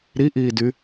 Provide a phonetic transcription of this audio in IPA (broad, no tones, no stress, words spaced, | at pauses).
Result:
ɾiʔiːdy